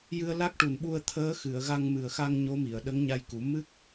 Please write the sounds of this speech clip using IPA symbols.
j ɨ˧ ə̯ l a˦˥ k̚ ʈ u˨˩ n ɓ u˧ ə̯ t̪ʰ əː˧˥ x ɨ˨˩˨ ə̯ ɣ a˧ ŋ m ɨ˨˩ ə̯ x a˧ ŋ ɲ o˧˥ m i˨˩˨ ə̯ ɗ ə˧˥ ŋ ɲ a˧ j k u˨˩˦ m ɨ˦˥ k̚

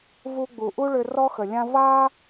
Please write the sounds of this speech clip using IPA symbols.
v u˧ ɡ͡b u˩ ʔ u˥ ɭ ʏ˧ r ɔ˥ x ə˩ lʲ ã˥ v a˥

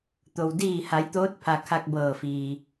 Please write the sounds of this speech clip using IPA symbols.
t̪ o˩ w d iː˧˩ h a˩˧ j t̪ oː˧˥ t̚ pʰ a˩ kʰ a˧ k̚ b ɤː˧˩ f iː˩

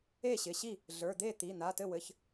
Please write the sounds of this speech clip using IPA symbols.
e˥˩ ɕ ɪ˩˧˩ ɕ i˥˩ | ɮ ə˞˩˧˩ d̪ e˥˩ t̪ i˩˧˩ n̪ a˩˧˩ t ɘ˥˩ w ɘ˩˧˩ ç

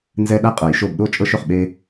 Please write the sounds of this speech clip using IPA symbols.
n z ɛ˦ ɗ a˥˨ qʼ ɤ˨˩˦ j ʃ o˧˩ b ɗ o˥˨ t͡ʃʼ ɤ˦ ʃ ø˩ χ ɓ e˦

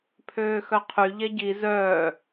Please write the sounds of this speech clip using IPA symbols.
pʰ øː x œ qʰ y ʎ ɛ ɟ i z œː

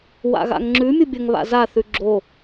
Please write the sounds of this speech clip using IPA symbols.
w a̰ ɣ a̰ ŋ ŋ͡ǁ ʉ mʲ u bʲ ɐ ŋ β a̰ z a θ ʉ ɡ͡ǁ o

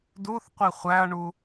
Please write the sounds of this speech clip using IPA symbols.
d u θ qʷ i χʷ æ ɐ̯ ɳ u

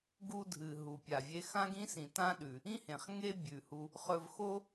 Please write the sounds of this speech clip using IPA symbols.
ɡ u˧ dʱ ɨ˩ ɦ u˩ pʲ a˩ vʲ e˧ x ã˥ ɡ ĩ˥ s ĩ˩ t ã˥ ɗ ʉ˩ | ĩ˥ h ẽ˩ χ ŋ e˥ bʲ ʉ˩ h u˧ | χ ɵ˧ v x o˥

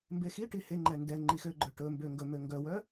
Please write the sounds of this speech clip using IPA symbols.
m b e x i ʈ i h e ŋ͡ǃ ɛ n d ɛ ŋ͡ǃ i x ø ɡ͡ǃ œ ʈ ɵ m b ø ŋ ɡ ɵ m ø ŋ ɡ œ w œ

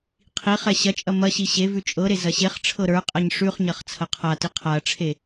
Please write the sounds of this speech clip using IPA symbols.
qʰ i χ ɛ ɕ ɐ t͡ʃʼ ɐ m ɐ ɕ i ɕ e v ʉ t͡ʃʼ ɤ ɾ e z ɐ ɕ e χ ʈ͡ʂʰ ɤ ɾ ə˞ qʼ ɐ ɲ ʂ ʉ χ ɲ ɐ χ t͡sʰ ɐ qʰ a t i qʰ a ɐ̯ ʈ͡ʂʰ e

